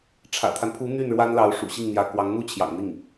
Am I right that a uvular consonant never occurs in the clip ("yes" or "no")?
yes